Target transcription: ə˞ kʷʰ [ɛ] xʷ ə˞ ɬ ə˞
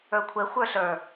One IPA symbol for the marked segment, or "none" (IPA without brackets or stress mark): ɛ